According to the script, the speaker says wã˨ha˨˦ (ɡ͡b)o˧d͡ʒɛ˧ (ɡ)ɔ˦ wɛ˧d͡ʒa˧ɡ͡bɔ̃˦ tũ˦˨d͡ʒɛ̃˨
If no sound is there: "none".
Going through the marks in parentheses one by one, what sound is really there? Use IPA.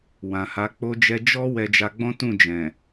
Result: k͡p, d͡ʒ

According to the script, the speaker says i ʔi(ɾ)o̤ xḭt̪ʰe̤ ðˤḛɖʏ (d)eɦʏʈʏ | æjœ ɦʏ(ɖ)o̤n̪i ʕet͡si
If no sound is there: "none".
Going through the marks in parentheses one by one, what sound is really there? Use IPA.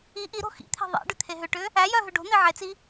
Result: ɾ, t̪ʰ, ɖ

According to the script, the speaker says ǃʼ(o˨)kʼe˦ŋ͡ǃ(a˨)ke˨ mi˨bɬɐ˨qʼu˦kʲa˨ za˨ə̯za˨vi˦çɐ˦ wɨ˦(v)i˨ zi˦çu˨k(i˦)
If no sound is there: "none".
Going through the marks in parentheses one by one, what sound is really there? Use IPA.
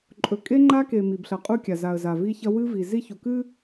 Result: ɵ˨, a˦, v, ɨ˦

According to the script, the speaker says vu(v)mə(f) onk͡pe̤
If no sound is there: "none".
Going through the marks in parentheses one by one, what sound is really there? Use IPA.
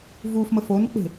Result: f, f

